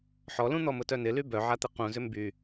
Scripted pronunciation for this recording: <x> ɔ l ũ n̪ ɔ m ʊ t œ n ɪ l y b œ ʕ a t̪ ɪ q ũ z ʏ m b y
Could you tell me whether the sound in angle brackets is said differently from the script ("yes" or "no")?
yes